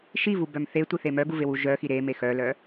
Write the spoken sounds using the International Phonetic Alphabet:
ʃ i v u b œ m θ e tʷ i θ e m œ ɡ u v e w u ʒ œ x i ɾ e m e x œ l œ

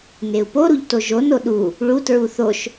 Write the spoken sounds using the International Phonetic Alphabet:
n e u̯ p o ɾ u ʎ t o ʒ o n o ɗ u | ɭ u t ɹ u θ o ʃ

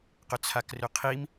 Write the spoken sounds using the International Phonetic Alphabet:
q ʏ t͡sʰ a k r ʏ qʰ i m

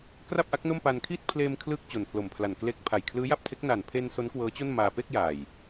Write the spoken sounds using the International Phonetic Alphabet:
k r a˥˩ p̚ ʔ a˦˥ k̚ n o˥˩ m p a˧ n kʰ iː˥˩ t̚ pʰ l eː˧ m kʰ l ɯː˥˩ k̚ t͡ɕ o˨˩ n pʰ l o˨˩ m pʰ l a˨˩ n k l e˦˥ k̚ pʰ a˨˩ j kʰ l ɯː˦˥ j a˥˩ p̚ tʰ e˦˥ k̚ n a˨˩ n pʰ e˧ n s o˦˥ n k w ɤː˦˥ t͡ɕ o˥˩ n m aː˧ p e˥˩ k̚ j aː˨˩ j

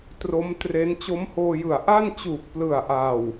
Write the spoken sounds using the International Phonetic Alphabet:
t r o˦˥ m t r e˦˥ n t͡ɕ o˦˥ m h oː˧ j ɯ˨˩ a̯ ʔ a˥˩ n t͡ɕ uː˨˩ k̚ p l ɯ˨˩ a̯ ʔ a˨˩ w

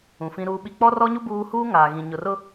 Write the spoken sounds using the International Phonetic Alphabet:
ũ˨ f ĩ˦ ɾ uː˦ ɓ i˦ k͡p ɔ˦ r ɔ˦ ɲ u˦ b uː˦ h uː˦ ŋ aː˨ ɣ ĩ˨ ɲ ʊ˨ r ʊ˦

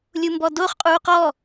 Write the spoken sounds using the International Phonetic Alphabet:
lʲ u m b ɔ d o χ qʼ uː q ɔ

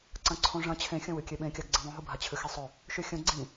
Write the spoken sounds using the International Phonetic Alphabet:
ǀ ɐ̃ ǀʰ õ ʐ ɐ̃ t͡ɕʰ ẽ xʲ ɐ̃ w ɨ kʲ e ɓ ẽ kʲ a ɡ ɡ͡ǀ ĩ ðˤ ũ ɦ u bʱ a t͡ɕʰ ɨ x i sˤ ɵ | ʃ ʉ xʲ ɐ̃ ɡ͡ǀ ĩ

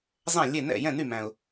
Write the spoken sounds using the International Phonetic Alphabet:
zˤ æ̃˥˩ lʲ e˥˩ n ɛ̰˥˩ j ɛ̃˥˩ n y˥˩ m æ̃˨˩ ʊ̯

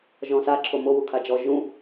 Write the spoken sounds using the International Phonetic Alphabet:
ʒ ɔ̃ s a ǁʰ o m o w u kʰ a d͡ʒ ɔ ʒ ũ

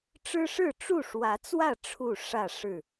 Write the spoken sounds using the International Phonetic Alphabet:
ʈ͡ʂ ɻ̩˦ ʂ ɻ̩˥˨ ʈ͡ʂ u˥˨ ʂ w ä˨˦ t͡s w ä˥˨ ʈ͡ʂʰ u˥˨ ʂ ä˥˨ ʂ ɻ̩˥˨

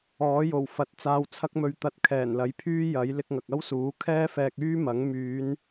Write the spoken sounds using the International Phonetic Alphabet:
ɔː˨˥ j o˨˩ w f ɐ˨ t̚ t͡s aː˨ w t͡sʰ ɐ˧ k̚ m ɵ˨ ɥ t̪ ɐ˧ t̚ kʰ ɛː˨˩ n l ɐ˨˥ j pʰ yː˥ j ɐ˨˥ j l ɪ˧ k̚ ŋ ɐ˨ k̚ ɐ˥ w s uː˨˥ kʰ ɛː˥ f ɛː˧ k̚ yː˥ m ɐ˨˥ ŋ m yː˨˧ n

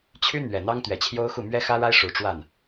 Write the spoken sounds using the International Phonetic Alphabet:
t͡ɕʰ y˥ n̪ ɥ ɛ˨˩ n̪ ɑ˥ ŋ t̪ ɥ ɛ˨˩ t͡ɕʰ j o˥ ʊ̯ x u˥˩ m ɥ ɛ˥ x ä˥ ɻ a˥ ɪ̯ ʂ u˨˩ ʈ͡ʂ w a˥˩ n

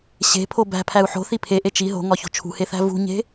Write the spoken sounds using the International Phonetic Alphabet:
ɕ e̤ pʰ o b æ̤ pʰ æ u̯ ħ o̤ θ i pʰ e ʔ e t͡ʃ i ɦ o̤ ŋ ɒ ç o̤ t͡ʃʰ ṳ h e θ æ̤ v ṳ ɲ e̤

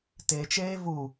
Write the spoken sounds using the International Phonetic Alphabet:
t e t͡ʃ eː v u

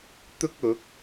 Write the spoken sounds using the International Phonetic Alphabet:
t̪ ʊ˥ k̚ ʊ˨˥ k̚

